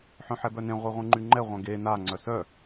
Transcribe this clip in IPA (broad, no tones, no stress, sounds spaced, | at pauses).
ħ œ̃ ħ ɛ b œ n ẽ ʁʷ e ʁʷ ẽ ŋ͡ǃ y ŋ͡ǃ ɛ ʁʷ œ̃ ɡ e n a ŋ͡ǀ œ s œ